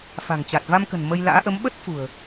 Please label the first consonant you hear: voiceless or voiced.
voiceless